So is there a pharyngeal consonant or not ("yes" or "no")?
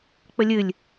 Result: no